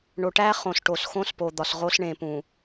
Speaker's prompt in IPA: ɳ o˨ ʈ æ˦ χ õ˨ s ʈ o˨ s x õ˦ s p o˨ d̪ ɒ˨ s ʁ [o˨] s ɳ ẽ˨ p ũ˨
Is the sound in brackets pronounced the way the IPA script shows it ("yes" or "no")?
no